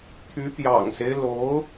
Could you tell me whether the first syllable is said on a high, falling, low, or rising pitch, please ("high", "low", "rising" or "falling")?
rising